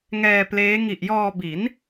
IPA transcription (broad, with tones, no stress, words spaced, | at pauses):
ŋɛː˧pleː˦˥ ŋi˨˩ʔjɔː˧ bi˩˦n